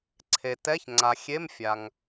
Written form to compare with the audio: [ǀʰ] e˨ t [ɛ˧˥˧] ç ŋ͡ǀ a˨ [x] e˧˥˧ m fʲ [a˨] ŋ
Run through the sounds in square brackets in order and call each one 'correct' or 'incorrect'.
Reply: correct, correct, incorrect: xʲ, correct

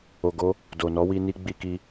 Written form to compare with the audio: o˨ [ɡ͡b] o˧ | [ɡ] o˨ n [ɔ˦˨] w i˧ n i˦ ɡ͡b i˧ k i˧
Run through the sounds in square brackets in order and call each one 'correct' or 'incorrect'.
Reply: incorrect: ɡ, incorrect: d, incorrect: ɔ˨˦

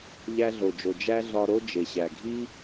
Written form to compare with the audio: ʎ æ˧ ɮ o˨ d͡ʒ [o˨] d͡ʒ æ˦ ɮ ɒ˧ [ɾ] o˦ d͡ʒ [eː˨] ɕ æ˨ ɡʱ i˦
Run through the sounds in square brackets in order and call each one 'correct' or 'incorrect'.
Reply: correct, correct, incorrect: e˨

